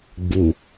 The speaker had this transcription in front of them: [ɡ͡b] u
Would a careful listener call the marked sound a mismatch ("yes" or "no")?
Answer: no